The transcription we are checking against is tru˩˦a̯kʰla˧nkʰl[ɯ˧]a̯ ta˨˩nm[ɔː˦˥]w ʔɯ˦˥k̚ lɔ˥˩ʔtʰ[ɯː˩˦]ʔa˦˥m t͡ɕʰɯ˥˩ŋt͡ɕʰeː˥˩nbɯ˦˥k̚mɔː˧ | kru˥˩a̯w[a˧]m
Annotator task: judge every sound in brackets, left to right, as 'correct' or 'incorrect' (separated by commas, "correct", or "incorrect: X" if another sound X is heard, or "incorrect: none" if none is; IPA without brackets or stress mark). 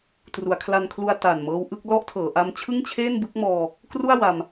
incorrect: u˧, incorrect: ɤː˦˥, incorrect: ɤː˩˦, correct